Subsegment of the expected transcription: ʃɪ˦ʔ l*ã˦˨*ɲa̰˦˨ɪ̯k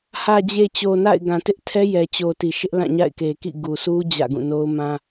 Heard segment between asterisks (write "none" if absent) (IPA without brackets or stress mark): ã˦˨